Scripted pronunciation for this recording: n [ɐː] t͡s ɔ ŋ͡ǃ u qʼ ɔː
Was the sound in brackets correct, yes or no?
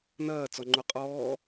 yes